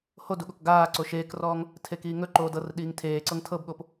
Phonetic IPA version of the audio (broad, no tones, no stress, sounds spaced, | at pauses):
h o d u ɠ o k ɡ aː ǀ o ʃ eː k r ɔː ŋ | tʰ e k iː ŋ ɵ ǃ oː d ɤ r ɗ iː ŋ tʰ eː ǀ ɤ ŋ tʰ ɤ b ɠ o p